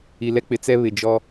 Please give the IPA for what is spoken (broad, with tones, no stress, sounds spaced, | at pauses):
i˨ l ɛ˦ k͡p ɪ˨ t͡s ɛ˦ β ɪ˨ d͡ʒ ɔ˦